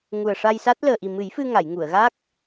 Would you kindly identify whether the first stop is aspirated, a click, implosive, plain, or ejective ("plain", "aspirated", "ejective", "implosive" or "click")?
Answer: plain